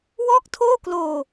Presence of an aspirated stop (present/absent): present